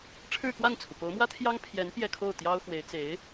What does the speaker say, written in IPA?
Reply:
ʈ͡ʂʰ ɻ̩˥˧ k w a˥˩ n t͡sʰ u˩ p o˧˥ ʊ̯ m w ä˥ t̪ʰ j ɑ˥ ŋ pʰ j ɛ˧˥ n p j ɛ˥˧ kʰ o˥˩ ʊ̯ t̪ j ɑ˥ ʊ̯ x w e˧˥ ɪ̯ t͡s e˧˥ ɪ̯

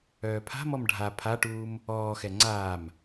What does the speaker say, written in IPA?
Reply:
œː pʰ a̤ m ɔ m ɖʱ a pʰ a ʈ uː m | ɔː x ɛ ŋ͡ǀ aː m

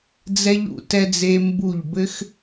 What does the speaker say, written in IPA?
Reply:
d͡z ɛ˧ ʎ ṵ˨ t ɛ˧ d͡z e˧ m b u˦˨ ʎ b ɘ˦ x

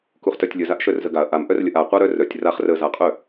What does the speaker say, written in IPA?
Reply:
k u χ t œ tʲ lʲ ə z a ʔ ʃ œ r z ə ɡ a ɐ̯ ʔ a m ʔ œ r lʲ ə ʔ a qʷ a ɾ œ r œ tʲ r a χ r ə z a qʼ œ

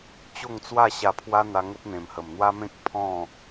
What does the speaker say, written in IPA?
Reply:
t͡ɕ o˥˧ ŋ t͡s w a˥˧ ɕ a˧ pʰ w a˦ n̪ a˧ ŋ ə˦ p̚ n̪ ẽ˨˩ m h ə˨˩ m n̪ w a˦ m ẽ˦ k̚ pʰ ɔ̃˥˧

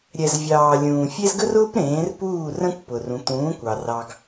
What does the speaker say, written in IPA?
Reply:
ɾʲ ɛ˩ z vʲ ɑː˩ lʲ ũː˩ fʲ e˥ z ɡ ə˥ r ʊː˥ p ɾ ẽː˩˥ r p uː˥˩ r ə̃˥ kʷ p ʊ˩ r ũ˩˥ t̪ ũː˩˥ kʷ ɑ˩ r ɑ˧ ɡ

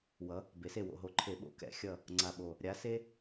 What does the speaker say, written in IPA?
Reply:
w ʌ˩˧ | b e˩˧ s e˧˩ w o̰˧˩ ɦ o˧˩ ǃʰ e˧˩˧ ɓ o̰˧˩˧ k ɛ̰˧˩˧ xʲ ʌ˧˩ | ŋ͡ǀ a˧˩ ɓ o˧˩ | ɾʲ a˧˥ s e˥

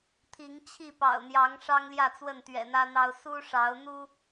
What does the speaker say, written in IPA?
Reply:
t̪ʰ i˨˦ ŋ t͡ɕʰ i˥˨ p ɑ̰˨˩ ʊ̯ n̪ j ɑ˨˦ ŋ ʂ ɑ˦ ŋ l j ä˥˨ t͡s w ə˥˨ n t̪ ɥ ɛ̰˨˩ n̪ ä˦ n̪ ɑ˦ ʊ̯ s u˦ ʂ ɑ˨˦ ʊ̯ n̪ u˦

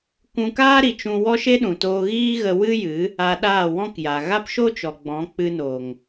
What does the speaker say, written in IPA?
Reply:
kʷ ũ˧ k aː˦ ɾ i˨ t͡ʃ ũ˧ w ɔ˦ ʃ e˦ ɗ ũ˨ t oː˧ ɣ iː˦ ɣ ə˧ w ɨ˦ j ɨ˨˦ | a˧ ɗ aː˦˨ w ɔ̃˦ k j a˨ ɣ a˦ p ʃ o˦ t͡ʃ ɔ˨ ɡ͡b ɔ̃˨˦ k͡p ɨ˧ n o˨ ŋ

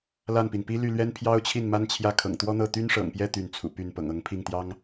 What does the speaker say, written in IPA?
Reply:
l a˥˩ n p i˩ n p i˥ l y˥˩ l ɥ ɛ˥ n pʰ j ɑ˥ ʊ̯ t͡ɕʰ i˥˩ n m a˥ n t͡ɕʰ j ä˥˩ kʰ ɤ̰˨˩ ŋ t̪ w ɔ˥ n̪ ɤ˥˩ t̪ y˥ n ʂ ɤ̰˨˩ ŋ p j ɛ˥˧ t̪ y˥˩ n t͡sʰ ṵ˨˩ p y˥˩ n p ɤ̰˨˩ ŋ ɤ˧˥ ŋ pʰ i˥˩ ŋ t̪ j ɑ˥ ŋ

